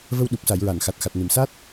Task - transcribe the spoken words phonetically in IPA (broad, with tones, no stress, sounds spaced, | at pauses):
v ə˧ w ɗ u˨˩ p̚ s a˨˩˨ j ɹ a˨˩˨ n x a˨˩ t̚ x a˨˩ t̚ n ɨ˨˩˨ m s a˦˥ t̚